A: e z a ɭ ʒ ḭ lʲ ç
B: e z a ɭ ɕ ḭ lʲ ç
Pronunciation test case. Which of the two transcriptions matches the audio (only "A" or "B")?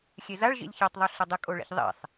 A